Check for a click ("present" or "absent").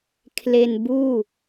absent